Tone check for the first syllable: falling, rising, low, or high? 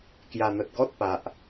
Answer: low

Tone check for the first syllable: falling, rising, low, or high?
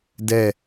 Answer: falling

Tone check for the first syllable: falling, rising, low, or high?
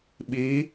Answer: rising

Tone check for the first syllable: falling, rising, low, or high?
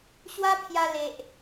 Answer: high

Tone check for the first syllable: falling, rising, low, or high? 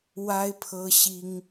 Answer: high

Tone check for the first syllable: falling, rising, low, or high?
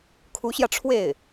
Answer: rising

